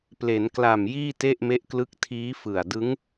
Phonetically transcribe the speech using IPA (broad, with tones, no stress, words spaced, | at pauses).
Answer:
ple˩˦nkla˨˩m jiː˥˩te˥˩ʔme˦˥ʔklɯ˦˥k̚ tʰiː˦˥ fɯ˨˩a̯ dɯ˦˥ŋ